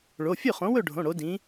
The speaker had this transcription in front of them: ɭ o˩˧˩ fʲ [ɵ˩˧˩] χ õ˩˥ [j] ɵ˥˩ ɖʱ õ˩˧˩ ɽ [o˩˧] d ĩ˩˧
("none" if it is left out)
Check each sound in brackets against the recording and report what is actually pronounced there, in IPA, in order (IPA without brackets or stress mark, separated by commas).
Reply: ɵ˥˩, w, o˩˧